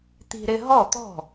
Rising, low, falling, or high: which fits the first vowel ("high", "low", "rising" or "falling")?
high